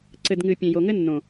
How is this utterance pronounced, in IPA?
ǀ ɘ˨ d ŋ ɨ˨ pʲ ẽ˨ j o˨ ŋ ɘ˦ nː õ˨

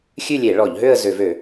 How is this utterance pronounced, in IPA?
xʲ ʉ˥˧ lʲ e˧˩˧ ɭ ɔ˧˩˧ ʎ ɦ ø˥˧ ə̯ z ø˧˩˧ v ø˧˩˧

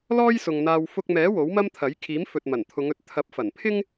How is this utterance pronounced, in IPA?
l ɔː˥ j s ʊ˨ ŋ n̪ aː˧ w f ʊ˧ k̚ m ɛː˨˥ w o˨˥ w m ɐ˥ m t̪ʰ ɐ˨˥ j kʰ iː˨˥ m f ɵ˨ t̚ m ɐ˨˩ n t̪ʰ ʊ˨˧ ŋ ɵ˨˥ t̚ t̪ʰ ɐ˨˥ p̚ f ɐ˨˩ n pʰ ɪ˥ ŋ

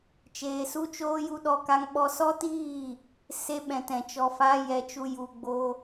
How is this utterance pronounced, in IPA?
t͡ʃ eː˧ s u˦ t͡ʃ oː˦ j u˦ ɗ ɔ˦ k a˦ ŋ ɓ ɔ˦ s ɔ˦ t iː˦˨ | s e˧ ɓ ɛ̃˨ t ɛ̃˨ t͡ʃ ɔ˧ f a˦ j ɛ˧ t͡ʃ u˧ j u˨ ɡ͡b o˧

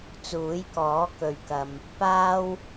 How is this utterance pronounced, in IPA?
t͡s uː˨˥ j k ɔː˨˥ k ɵ˨ ɥ k ɐ˨ m | p aː˥ w

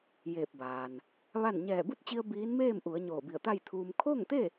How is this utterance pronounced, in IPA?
j eː˧˩ p̚ b aː˩ n | ʋ a˥˨ n ɲ ɛː˧˩ b u˥˨ t̚ t͡ɕ i˧ ə̯ b iː˧˥ n m eː˥˨ m ʔ u˩˧ ə̯ ɲ oː˧˩ b i˧˩ ə̯ t̪ a˥˨ j t̪ʰ uː˧ m kʰ oː˥˨ ŋ t̪ e˥˨

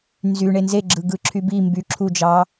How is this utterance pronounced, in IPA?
n z y ɳ e n z e ɡ͡ǁ ɯ ɡ ɯ ǁʰ y b i m b y ǁʰ u d͡ʒ ɑ

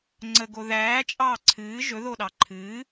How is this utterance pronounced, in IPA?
ŋ͡ǀ ə ɡ o ð æː t͡ʃʼ ɑː ǀʰ ɨː ʒ ɵ ð o ɗ ɑ ǃʰ ɨː

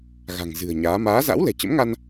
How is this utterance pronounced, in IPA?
ɣ a̤˨˩ ŋ z ɨ̤˨˩ ə̯ ɲ aː˨˦ m aː˨˦ z a̰˧˥ w l ɛ̤˨˩ t͡ɕ ə̰˧˥ m ŋ a˧ n

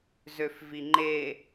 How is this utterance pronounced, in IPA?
z ø f v i ŋ͡ǃ e

